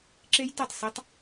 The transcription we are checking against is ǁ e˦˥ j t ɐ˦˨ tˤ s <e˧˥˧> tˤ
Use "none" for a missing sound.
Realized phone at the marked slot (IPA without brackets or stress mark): e˧˥˧